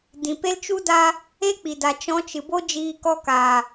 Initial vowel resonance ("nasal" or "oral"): nasal